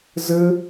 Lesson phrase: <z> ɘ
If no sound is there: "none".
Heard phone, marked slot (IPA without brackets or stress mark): z